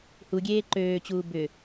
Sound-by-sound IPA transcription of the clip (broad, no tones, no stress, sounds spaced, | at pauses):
h u ɡʲ eː ǃ øː t͡ɕ uː b ʏ